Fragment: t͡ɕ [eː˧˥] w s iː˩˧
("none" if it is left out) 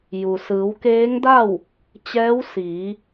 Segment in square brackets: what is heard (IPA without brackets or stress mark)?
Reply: ɛː˧˥